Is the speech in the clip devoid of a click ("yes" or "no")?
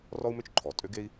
no